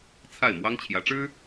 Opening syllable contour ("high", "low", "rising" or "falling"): falling